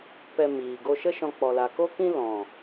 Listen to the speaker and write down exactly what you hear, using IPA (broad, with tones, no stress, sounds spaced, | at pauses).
p ɛ˧ m iː˨ ɡ o˧ ʃ ə˦ ʃ ɔ̃˧ k͡p ɔ˨ l a˨ k o˦ k ĩ˦ l ɔ̃˨